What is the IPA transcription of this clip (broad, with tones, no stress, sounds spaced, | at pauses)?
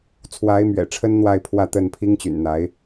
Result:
t͡sʰ w a˧˥ ɪ̯ m ɥ ɛ̰˨˩ ʈ͡ʂʰ ə˥ n n̪ w a˥˧ ɪ̯ pʰ w ä˥˧ t̪ ə˥˩ n pʰ i˥ ŋ t͡ɕ y̰˨˩ n n̪ a˧˥ ɪ̯